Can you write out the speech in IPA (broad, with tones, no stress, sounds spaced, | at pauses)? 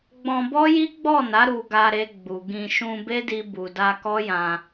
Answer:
ɡ͡b ɔ̃˧ b ɔ˦ j i˦ ɡ͡b ɔ˦˨ n a˨˦ ɾ u˧ ɡ a˧ ɾ e˧ ɡ͡b u˨ ɡ ĩ˧ ʃ ũ˧ b e˦ d i˧ b u˨ d a˧ k ɔ˦ j ã˧